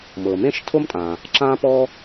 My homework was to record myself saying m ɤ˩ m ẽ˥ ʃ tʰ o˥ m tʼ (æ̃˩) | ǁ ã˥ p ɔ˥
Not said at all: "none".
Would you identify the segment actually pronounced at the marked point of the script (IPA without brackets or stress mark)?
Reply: ã˩